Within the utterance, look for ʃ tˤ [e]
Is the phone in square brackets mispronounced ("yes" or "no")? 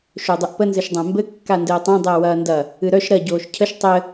yes